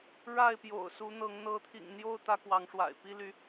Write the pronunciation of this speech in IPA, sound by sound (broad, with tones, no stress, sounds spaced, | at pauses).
ɻ a˥˨ ɪ̯ p j o̰˨˩ ʊ̯ s u˨˦ n̪ ɤ˨˦ ŋ n̪ ɤ˨˦ t̪ʰ ḭ˨˩ ŋ n̪ j o˥˨ ʊ̯ t̪ ä˦ k w ɑ˨˦ ŋ ʂ w a̰˨˩ ɪ̯ p i˦ l y˨˦